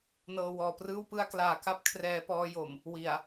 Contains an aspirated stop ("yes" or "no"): yes